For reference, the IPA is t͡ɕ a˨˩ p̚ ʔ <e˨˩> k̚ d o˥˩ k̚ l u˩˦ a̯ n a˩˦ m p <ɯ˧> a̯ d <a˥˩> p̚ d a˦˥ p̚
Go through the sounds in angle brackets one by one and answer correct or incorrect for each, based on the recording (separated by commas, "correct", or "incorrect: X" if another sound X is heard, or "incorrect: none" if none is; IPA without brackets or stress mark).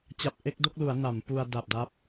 incorrect: e˥˩, incorrect: u˧, incorrect: a˨˩